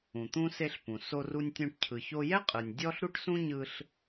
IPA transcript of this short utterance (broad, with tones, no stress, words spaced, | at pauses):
ũ˩t̪ũ˧ se˧ɬpũ˩ so˧ru˧nʲtʲũ˧ʈ cʰɯ˩ço˧jɛ˥qʼɯ˩nʲ dʲɔ˥ɬɾu˥ʈ sũ˥ ɲɯ˧ɬ